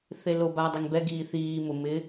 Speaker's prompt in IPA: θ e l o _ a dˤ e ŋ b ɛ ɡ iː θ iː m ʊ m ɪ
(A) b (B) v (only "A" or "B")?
A